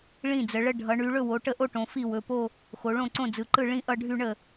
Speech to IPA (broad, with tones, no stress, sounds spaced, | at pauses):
ɭ ĩ˥˩ d͡z ə˩˧ ɭ ə˥˧ ɖʱ ʌ˩˧ ɳ y˩˧ ɭ ɵ˥˩ w o˩˧ ʈ ə˥˩ ʔ o˥˧ ʈ õ˩˧ f i˥˩ w ɵ˩˧˩ p o˥˧ | x o˩˧ ɭ õ˥˩ ǀ õ˥˩ d͡z ɯ˩˧˩ ǃ ɯ˥˩ ɭ ĩ˥˧ ʔ ʌ˥˧ ɖʱ y˥˧ ɳ ə˥˩